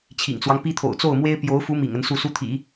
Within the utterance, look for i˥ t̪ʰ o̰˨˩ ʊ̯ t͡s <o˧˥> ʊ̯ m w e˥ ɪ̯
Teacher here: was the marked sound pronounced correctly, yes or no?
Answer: no